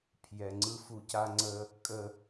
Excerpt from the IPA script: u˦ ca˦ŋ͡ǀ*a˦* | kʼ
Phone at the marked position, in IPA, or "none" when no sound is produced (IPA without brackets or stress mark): ə˦